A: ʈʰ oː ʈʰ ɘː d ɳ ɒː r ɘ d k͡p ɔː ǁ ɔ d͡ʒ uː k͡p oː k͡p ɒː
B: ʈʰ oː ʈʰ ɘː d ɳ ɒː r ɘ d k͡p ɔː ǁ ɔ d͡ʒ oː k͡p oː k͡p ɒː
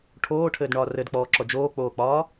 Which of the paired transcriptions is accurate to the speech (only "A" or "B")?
B